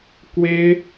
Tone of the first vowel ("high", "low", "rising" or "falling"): high